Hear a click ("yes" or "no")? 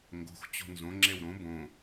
yes